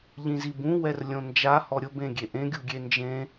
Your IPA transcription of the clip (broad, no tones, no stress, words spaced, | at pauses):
ʎĩzibũ wɛrlʲõnd͡ʒa hɔɾʲʊ bẽɡʲeʔẽ ɡʲuɡʲend͡ʒẽ